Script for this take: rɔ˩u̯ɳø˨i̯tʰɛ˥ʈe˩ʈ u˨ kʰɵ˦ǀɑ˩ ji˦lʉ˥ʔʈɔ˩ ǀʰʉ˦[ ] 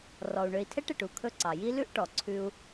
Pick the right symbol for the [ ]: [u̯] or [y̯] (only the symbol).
u̯